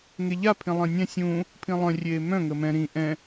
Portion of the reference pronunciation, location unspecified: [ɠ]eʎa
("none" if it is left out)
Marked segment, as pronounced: ŋ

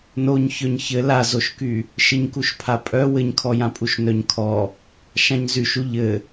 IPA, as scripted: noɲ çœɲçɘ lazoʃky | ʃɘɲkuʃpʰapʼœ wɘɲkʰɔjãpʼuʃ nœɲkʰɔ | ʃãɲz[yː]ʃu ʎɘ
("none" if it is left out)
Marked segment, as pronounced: y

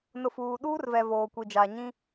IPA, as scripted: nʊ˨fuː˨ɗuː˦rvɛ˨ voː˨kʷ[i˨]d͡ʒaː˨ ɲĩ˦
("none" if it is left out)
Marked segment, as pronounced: i˨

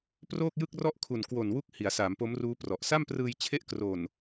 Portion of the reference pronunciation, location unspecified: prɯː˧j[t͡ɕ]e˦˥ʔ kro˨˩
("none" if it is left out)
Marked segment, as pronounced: t͡ɕʰ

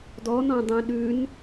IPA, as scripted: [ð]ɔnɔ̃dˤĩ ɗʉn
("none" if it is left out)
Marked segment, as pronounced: d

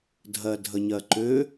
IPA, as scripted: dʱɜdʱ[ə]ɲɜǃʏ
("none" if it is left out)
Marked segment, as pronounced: ə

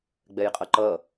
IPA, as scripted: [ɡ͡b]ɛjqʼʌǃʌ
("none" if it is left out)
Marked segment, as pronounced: ɡ͡b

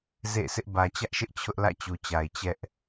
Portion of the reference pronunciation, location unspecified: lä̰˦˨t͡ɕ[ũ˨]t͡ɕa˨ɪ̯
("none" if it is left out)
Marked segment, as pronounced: u˨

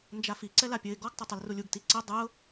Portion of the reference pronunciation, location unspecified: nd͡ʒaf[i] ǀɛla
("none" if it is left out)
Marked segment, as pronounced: i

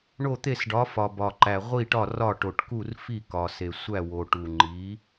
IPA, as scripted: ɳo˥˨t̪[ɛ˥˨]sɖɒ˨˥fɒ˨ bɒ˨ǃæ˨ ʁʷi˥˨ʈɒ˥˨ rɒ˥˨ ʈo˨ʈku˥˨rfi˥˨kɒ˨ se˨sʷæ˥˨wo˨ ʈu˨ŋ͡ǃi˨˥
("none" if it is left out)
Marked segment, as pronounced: e˥˨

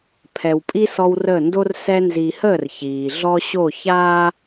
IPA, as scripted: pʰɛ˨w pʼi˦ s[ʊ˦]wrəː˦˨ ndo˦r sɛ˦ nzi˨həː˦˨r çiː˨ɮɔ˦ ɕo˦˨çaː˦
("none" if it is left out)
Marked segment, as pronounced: ɔ˦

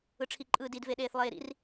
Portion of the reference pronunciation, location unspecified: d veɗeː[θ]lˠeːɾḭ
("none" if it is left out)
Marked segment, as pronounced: θ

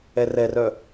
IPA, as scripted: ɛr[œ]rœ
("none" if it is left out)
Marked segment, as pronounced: ɛ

